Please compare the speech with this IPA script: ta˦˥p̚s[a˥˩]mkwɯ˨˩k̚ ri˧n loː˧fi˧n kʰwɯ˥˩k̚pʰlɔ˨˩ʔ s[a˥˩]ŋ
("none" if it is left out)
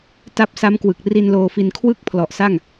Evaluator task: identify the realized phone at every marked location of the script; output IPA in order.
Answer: a˦˥, a˥˩

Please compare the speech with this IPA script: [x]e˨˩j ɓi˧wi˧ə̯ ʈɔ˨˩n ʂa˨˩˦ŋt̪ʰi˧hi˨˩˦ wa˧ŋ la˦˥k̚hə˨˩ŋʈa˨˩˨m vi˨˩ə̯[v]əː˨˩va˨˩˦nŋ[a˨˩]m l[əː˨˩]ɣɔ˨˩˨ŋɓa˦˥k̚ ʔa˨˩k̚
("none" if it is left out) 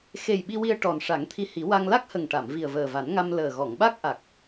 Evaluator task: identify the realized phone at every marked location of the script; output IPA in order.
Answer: x, v, a˧, əː˨˩

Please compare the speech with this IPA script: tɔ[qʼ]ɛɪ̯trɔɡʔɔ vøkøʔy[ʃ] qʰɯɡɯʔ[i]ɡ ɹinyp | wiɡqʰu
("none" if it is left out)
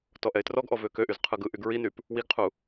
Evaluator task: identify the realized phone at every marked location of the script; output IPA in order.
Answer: ʔ, z, y

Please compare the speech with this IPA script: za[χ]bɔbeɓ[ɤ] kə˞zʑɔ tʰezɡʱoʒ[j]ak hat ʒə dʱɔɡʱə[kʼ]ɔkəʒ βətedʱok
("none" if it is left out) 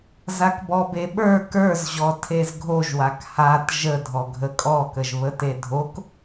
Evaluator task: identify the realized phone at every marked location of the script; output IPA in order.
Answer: k, ə˞, w, kʼ

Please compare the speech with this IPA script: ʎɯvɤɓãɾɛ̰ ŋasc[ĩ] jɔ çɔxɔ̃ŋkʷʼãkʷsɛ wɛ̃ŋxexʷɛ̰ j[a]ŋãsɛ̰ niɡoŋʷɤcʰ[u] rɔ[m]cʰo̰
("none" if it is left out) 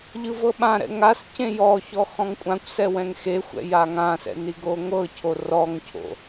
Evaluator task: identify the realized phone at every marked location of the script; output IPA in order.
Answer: ẽ, a, o, ŋ

